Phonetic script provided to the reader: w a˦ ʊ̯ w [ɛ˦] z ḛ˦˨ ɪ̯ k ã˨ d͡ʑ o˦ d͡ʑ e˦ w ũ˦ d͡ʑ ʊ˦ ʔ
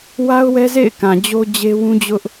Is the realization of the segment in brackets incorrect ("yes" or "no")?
no